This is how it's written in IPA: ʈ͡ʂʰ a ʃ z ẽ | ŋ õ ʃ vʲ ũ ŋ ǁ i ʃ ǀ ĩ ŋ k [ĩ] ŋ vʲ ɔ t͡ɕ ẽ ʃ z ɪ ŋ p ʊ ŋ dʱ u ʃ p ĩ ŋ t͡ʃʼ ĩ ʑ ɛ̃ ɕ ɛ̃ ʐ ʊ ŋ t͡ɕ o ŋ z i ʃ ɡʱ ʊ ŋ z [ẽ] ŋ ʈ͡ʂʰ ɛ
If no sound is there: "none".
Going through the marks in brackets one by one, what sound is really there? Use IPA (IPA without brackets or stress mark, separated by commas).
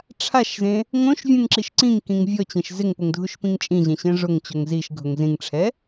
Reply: ĩ, ĩ